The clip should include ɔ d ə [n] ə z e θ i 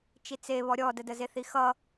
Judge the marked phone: incorrect: d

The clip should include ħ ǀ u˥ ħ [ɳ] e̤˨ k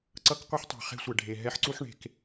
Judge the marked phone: correct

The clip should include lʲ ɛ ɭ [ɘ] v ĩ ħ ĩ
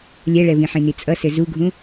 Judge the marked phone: incorrect: ɛ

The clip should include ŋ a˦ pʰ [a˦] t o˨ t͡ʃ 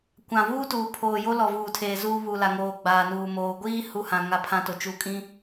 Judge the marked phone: incorrect: ã˦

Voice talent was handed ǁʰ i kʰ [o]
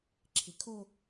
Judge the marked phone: correct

